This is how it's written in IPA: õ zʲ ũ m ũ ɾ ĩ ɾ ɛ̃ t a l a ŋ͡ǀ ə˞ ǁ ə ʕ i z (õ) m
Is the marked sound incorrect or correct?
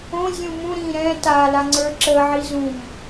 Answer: incorrect